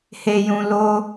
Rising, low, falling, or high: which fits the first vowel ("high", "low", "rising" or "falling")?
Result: low